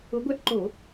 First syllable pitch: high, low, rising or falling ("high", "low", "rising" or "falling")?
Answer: rising